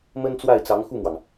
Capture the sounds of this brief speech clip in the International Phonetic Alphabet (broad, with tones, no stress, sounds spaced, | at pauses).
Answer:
m ə˥ n t͡s w a˥˩ ɪ̯ t͡s ɑ˧˥ ŋ x u˥˩ m w ɑ˩ ŋ